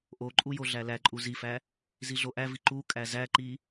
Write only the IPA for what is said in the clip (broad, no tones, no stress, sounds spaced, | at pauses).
ʔ o ǃʼ u j o ɮ æ l æ ǃʼ u z i f æ | z i ɮ o ʔ æ v i ǃ u kʼ æ z æ ǃ i